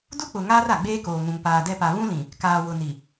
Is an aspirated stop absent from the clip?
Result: yes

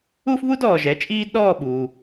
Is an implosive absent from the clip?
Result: no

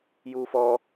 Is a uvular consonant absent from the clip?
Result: yes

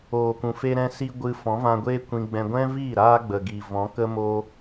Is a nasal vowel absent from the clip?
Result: no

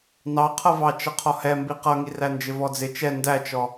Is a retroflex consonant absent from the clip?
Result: yes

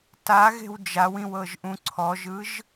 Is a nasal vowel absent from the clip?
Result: no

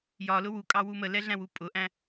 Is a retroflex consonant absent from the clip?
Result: yes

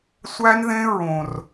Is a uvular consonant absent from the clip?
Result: yes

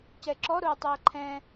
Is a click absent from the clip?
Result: no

